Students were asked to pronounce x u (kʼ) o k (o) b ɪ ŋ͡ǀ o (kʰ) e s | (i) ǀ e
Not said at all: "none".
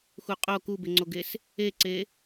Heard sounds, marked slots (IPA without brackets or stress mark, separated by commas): qʼ, u, ɡ, e